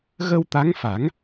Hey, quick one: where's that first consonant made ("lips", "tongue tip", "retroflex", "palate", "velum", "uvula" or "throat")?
velum